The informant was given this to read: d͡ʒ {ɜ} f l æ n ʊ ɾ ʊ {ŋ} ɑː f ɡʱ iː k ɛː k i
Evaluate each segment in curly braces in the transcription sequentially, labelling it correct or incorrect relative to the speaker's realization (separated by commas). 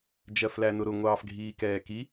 correct, incorrect